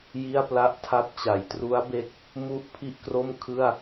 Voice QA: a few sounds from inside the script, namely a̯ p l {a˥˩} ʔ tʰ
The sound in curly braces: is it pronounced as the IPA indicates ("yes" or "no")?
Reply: yes